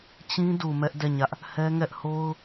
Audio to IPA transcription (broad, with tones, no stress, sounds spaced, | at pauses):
t͡ɕ ĩ˦ d u˨ m ɛ˦ ʔ d ɛ˦˨ ɲ ä˦ ʔ | h ɛ˦ ŋ ɛ˦ ʔ h o˦ ʊ̯